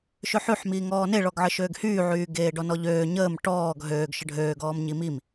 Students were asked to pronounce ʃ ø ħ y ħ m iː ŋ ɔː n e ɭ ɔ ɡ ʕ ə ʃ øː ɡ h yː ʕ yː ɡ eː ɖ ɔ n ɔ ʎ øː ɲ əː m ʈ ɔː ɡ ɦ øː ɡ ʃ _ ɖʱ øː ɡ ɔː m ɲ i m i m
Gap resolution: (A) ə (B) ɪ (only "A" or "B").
A